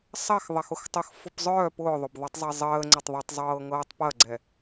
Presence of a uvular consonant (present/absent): absent